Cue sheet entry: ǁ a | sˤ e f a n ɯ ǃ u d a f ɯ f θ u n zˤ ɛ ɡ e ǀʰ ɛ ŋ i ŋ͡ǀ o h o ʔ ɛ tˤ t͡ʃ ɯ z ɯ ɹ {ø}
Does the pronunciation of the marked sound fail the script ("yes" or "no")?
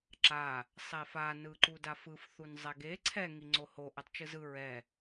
yes